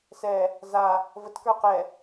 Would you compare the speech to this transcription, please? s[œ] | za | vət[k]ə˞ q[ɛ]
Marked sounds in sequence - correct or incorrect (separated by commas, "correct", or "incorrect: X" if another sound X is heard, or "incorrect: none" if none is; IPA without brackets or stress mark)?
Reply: incorrect: ɛ, correct, correct